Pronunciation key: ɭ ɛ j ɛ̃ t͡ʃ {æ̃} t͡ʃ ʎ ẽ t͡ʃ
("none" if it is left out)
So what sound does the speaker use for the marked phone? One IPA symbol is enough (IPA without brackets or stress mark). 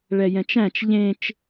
æ̃